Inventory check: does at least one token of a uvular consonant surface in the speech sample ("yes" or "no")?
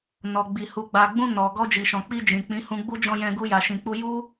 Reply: no